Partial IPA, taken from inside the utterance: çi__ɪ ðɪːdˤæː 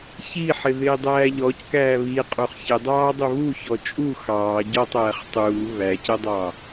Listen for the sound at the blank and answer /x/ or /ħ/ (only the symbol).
ħ